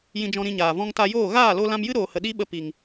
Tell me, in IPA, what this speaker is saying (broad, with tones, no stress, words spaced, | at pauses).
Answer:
jĩ˧d͡ʒɔ̃˧ɾĩ˧ɲaː˨ vɔ̃˧ŋta˧joː˦˨ ɣaː˦˨lo˧ lã˧mjɨ˦ɾoː˨hə˨ ɗi˦ɓə˧ pi˨ŋ